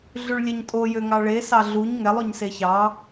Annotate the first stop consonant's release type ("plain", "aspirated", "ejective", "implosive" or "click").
ejective